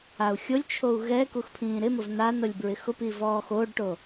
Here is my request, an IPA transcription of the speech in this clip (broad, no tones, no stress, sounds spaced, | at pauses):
a u̯ xʲ o lʲ t͡ʃʰ o u̯ ɣ ɛ k u x pʰ ĩː ɾ ɪ m ʊ v n a n ʊ lʲ b ɹ ɪ x ʊ p i v ɔː x o ɖ ʈ o